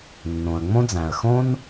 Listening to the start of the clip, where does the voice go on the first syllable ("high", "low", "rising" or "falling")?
low